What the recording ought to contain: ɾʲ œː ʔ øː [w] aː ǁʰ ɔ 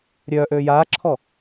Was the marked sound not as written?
yes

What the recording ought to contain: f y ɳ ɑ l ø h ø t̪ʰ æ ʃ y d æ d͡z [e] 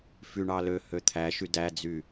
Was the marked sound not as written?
yes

